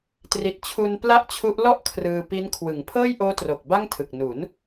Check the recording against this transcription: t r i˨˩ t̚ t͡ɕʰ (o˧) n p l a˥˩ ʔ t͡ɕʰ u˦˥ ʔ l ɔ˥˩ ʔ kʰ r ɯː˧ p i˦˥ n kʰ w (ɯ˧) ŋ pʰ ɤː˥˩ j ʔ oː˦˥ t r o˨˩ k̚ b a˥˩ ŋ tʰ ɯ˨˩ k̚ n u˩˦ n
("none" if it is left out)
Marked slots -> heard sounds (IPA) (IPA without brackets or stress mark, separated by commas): u˧, ɯ˩˦